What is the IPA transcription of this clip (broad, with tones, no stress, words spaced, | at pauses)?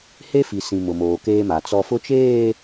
he˦fi˨sĩ˨ mʊ˨moː˨keː˦ma˨ t͡sɔ˨fʊ˦t͡ʃeː˦˨